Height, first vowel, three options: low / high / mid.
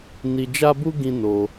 high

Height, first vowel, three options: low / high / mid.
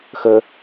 mid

